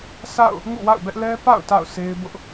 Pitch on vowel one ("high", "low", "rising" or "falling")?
falling